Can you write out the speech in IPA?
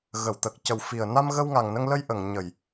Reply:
ɣ ə˨˩˨ w t̪ ə˨˩ k̚ c ə˨˩ w f i˨˩ ə̯ n a˧ m ɣ ə˧ w ŋ a˨˩ ŋ n ə˧ ŋ l ə˧ j ʔ ə˨˩˨ ŋ ɲ ə˨˩˨ j

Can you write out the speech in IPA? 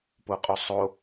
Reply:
p o qʼ o sˤ o

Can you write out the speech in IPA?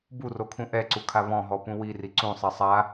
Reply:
b u r o kʰ ũ ʔ ɛ ǀ u kʰ a β ɔ̃ ɦ ɔ p ũ w i r i ǀ ũ sˤ ɛ sˤ a

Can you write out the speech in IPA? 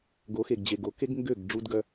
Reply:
ɡ o˨˦ x e˨ ɡ d͡ʑ e˨ ɡ o˨ k e˦ ɡ ŋ ɡ ø˦˨ ɡ ɖ͡ʐ u˦ d ɡ œ˦

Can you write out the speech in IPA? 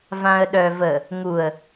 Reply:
v ã ə̯ ɗ œ v ə | ŋ u ə̯

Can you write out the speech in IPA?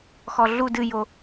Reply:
x ɔ ɮ u d ɨ j o

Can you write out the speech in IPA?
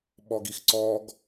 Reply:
ɓ ɔ ɡ i x ǀ ɔ ɡ

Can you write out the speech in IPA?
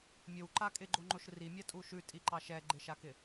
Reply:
mʲ o w ǃ a kʼ ɪ ɡ͡ǃ o ŋ͡ǃ o ʃ r i mʲ a tʼ u ʃ ʉ tʼ i ǃ ɑ ʃ ɛ ɡ͡ǃ ɪ ʃ a k ɪ

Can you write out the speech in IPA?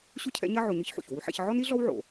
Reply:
ɕ u˥ cʰ ɛ̰˧˥ ɲ ɐ˥ ʕ o˧ ɲ ɨ˥ ç ħ ṵ˩ ç w u˧˥ ħ ɛ̰˧ ç ʕ ɔ˥ n i˥ ɮ ɔ˥ w ʕ o̰˩

